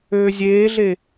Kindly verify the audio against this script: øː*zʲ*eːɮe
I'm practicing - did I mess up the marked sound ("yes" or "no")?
no